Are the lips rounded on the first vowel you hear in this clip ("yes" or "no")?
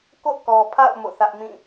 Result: yes